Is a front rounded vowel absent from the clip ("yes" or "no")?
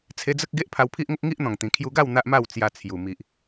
yes